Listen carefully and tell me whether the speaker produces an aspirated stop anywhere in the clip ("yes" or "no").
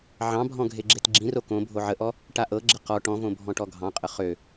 no